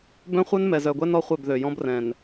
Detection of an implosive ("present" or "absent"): absent